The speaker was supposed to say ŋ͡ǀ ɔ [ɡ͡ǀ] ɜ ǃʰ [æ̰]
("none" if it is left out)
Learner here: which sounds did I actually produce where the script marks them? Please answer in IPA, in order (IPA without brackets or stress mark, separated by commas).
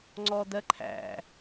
d, æ̰